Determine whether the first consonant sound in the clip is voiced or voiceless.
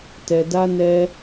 voiceless